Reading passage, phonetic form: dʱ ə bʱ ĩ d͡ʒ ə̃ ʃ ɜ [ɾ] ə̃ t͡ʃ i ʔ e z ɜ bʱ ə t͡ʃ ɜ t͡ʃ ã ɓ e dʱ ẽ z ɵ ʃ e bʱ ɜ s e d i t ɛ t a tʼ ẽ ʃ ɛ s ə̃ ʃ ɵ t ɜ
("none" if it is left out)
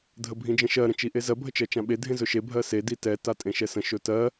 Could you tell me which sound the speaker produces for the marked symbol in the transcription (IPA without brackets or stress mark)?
ɾ